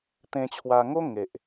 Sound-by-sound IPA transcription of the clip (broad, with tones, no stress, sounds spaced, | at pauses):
t̪ ẽ˧ t͡ɕʰ w a˧ ŋ o˦ ŋ e˦ ʔ